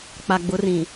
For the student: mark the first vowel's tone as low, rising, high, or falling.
low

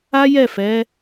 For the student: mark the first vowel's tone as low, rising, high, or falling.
high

